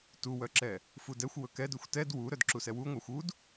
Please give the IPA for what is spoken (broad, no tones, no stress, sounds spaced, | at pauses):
t u w œ ǁ ɛ | f u d ɛ xʷ w ɵ k ɛ d ɵ xʷ t ɛ d w u ɾ œ d ǁ u s ɛ w u ŋʷ æ xʷ u d